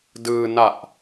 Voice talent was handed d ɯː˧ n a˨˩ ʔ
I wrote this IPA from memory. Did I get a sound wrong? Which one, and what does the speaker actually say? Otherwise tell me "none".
none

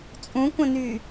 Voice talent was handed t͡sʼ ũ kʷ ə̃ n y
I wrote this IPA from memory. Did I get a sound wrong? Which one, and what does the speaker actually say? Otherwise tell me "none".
none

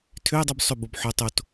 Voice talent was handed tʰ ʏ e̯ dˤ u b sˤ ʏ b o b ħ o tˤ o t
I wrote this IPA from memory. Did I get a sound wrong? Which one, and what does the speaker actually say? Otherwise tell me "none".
none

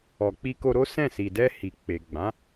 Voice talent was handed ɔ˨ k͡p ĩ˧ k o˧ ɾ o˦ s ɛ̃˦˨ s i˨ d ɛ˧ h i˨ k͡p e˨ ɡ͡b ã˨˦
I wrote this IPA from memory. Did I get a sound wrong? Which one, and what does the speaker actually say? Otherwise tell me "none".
ĩ˧ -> i˧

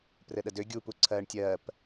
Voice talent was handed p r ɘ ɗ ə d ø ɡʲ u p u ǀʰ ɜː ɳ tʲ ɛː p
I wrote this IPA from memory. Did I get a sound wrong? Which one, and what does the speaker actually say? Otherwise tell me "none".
ɛː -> ɜː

